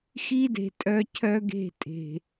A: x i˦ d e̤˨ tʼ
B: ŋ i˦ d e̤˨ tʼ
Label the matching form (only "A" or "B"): A